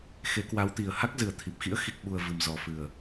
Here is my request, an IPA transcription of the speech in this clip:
x e˨˦ k w a˨˦ w t̪ i˨˩ ə̯ h a˦˥ k̚ z ɨ˨˩ ə̯ t̪ʰ i˨˩ p̚ x ḭ˧˥ ə̯ x i˨˩ k̚ ɓ u˨˩ ə̯ v ɨ˨˩ m z ɔ˨˩ f ɨ˨˩ ə̯

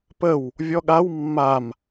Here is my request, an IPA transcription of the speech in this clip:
p ə w | vʲ ɔ ɠ a w mː a m

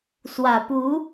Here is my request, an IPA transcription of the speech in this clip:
s w ä˨˩ p u˧˥

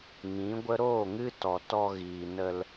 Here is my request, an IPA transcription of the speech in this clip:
ŋ ĩ˨˦ ɡʷ ə˦ ɾ oː˦˨ ŋ ɨ˦ t ɔ˨ t ɔ˧ ɣ iː˨ n ə˧ l

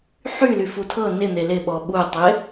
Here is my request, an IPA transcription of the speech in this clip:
ħ y l y f u tʰ ɤ n ɪ n̪ e l ɪ ɓ ɔ ɓ u tˤ ɪ

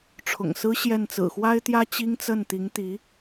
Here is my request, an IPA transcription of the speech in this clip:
ʈ͡ʂʰ ʊ̰˨˩ ŋ s ɹ̩˥ ɕ j ɛ˥˩ n t͡s ɹ̩˨˩ x w a˥ ɪ̯ t̪ j ä˥ t͡ɕ i˥ ŋ t͡s ə˥˩ n t̪ i˧˥ ŋ t̪ i˧˥

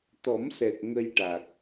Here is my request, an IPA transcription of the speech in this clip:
t̪ ɔ˨˩˦ m s ɛ˨˩ k̚ ŋ ə˧ j ʈ a˨˩ k̚

